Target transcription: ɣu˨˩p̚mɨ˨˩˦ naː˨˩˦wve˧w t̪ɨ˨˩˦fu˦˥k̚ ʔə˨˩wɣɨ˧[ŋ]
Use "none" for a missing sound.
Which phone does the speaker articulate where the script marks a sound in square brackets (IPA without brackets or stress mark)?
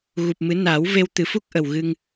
ŋ